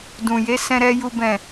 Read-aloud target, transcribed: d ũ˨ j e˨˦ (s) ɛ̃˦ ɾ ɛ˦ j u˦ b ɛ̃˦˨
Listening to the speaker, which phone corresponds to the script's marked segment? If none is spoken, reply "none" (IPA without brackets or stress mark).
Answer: s